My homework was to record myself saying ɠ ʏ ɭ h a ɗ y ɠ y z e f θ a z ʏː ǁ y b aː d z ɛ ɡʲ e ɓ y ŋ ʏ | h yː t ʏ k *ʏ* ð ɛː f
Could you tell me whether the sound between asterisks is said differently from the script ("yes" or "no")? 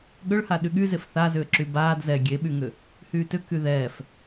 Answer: yes